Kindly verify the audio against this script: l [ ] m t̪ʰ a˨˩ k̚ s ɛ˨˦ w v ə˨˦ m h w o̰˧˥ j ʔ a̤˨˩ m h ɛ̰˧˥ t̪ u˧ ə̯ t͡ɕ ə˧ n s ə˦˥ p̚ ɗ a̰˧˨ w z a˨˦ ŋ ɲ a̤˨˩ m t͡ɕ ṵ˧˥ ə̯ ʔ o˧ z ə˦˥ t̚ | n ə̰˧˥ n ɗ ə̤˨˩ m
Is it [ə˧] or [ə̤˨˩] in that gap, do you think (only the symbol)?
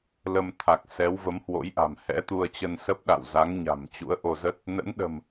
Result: ə˧